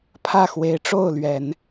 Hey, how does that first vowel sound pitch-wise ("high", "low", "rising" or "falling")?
falling